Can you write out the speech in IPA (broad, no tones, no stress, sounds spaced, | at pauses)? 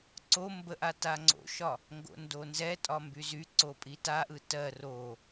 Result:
ǀ o m b ə ʔ a t a ŋ͡ǀ o̰ ʃ ɒ | ŋ ɡ o̰ n d o n z ɛ tʼ ɒ m b y z y ǀ o pʼ i t a ʔ ɯ t ɜ r o